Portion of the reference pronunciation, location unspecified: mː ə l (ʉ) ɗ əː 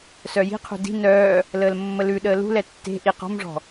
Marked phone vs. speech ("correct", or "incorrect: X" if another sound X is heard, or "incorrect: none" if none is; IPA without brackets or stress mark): correct